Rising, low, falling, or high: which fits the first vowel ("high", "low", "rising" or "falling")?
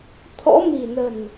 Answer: rising